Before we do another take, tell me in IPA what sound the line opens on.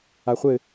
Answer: a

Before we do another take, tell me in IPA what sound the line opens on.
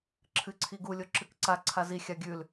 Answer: ǁʰ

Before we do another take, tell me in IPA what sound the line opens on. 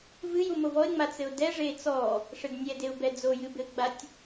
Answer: v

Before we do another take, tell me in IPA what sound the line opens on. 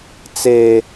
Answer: t͡s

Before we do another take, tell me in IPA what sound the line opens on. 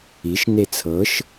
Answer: i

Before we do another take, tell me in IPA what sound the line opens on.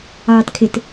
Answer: ɑː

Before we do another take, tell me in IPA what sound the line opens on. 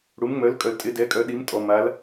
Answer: ɽ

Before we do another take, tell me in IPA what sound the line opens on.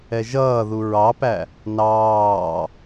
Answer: ɛ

